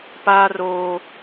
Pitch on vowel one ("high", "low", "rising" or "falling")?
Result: high